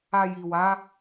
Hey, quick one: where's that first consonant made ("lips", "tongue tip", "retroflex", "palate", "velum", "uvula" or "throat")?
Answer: palate